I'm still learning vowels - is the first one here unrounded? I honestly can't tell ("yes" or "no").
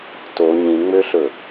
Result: no